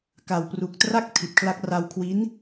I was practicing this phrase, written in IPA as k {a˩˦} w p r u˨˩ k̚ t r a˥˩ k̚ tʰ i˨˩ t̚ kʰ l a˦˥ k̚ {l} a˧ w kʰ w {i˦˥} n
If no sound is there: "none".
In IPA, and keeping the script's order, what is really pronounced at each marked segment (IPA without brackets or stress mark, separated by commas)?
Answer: a˨˩, r, i˦˥